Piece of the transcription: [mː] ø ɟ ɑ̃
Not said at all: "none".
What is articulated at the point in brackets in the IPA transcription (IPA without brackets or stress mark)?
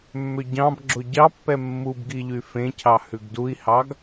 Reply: mː